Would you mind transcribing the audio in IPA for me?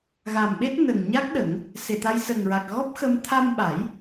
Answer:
ɣ a˨˩ m ɓ e˦˥ t̚ n ə˨˩ ŋ ɲ a˦˥ k̚ ɗ ə˨˩˦ ŋ | s e˨˩ t̪ a˧ j s ə˨˩ ŋ ɹ a˨˩ k̚ ɣ ɔ˦˥ p̚ x ə˧ m t̪ʰ a˧ m ɓ a˨˩˦ j

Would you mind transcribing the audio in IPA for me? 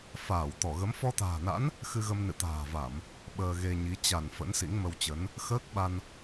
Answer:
f aː˧˩ w t̪ ɔ˧˩ ɣ ə˨˦ m f ɔ˧ t̪ a̤ː˨˩ n a̰˧˥ n | x ɨ˧ ɣ ə˧ m n ɨ̰˧˨ t̪ a̤ː˨˩ v a˧˩˨ m | ɓ əː˧ ɣ e˧ ɲ i˨˦ t͡ɕ a˧˩ n f ə̰˧˥ n s ḭ˧˥ ŋ m ə˧ w t͡ɕ ə˨˦ n | x əː˦˥ k̚ ɓ a˧ n

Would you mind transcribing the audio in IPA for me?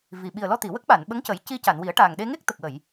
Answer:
v i˨˩ ɓ i˨˩ ə̯ l ɔ˧ t̪ i˨˩˨ w ə˦˥ k̚ ɓ a˨˩˨ n ɓ ə˧˥ ŋ c ə˨˩˦ j c i˧ c a˨˩˨ n w i˨˩˦ ə̯ ʈ a˨˩ ŋ ɗ e˧ ŋ e˦˥ k̚ t̪ ə˨˩ k̚ w ə˨˩˨ j

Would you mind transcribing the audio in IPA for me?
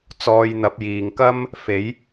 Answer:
t͡s ɔː˧ j n̪ ɐ˨˥ p̚ j iː˨˩ ŋ k ɐ˥ m | f e˨˥ j

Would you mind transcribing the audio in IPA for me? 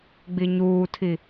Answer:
ɡ͡b i ɲ uː tʰ i

